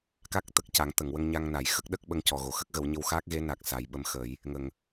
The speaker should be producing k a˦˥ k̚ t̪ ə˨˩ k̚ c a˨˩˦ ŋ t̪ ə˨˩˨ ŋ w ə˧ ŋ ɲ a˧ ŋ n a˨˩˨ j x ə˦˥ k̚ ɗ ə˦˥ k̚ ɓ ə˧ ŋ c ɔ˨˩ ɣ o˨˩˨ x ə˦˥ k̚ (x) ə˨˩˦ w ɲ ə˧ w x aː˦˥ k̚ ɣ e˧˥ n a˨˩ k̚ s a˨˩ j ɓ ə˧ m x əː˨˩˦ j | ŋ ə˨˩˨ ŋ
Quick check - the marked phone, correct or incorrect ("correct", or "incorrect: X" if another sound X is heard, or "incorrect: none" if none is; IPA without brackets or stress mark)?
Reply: incorrect: ɣ